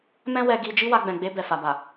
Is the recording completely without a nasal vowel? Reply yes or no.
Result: no